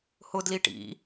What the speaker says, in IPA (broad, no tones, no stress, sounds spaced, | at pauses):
h ʊ d l i ʈ ḭ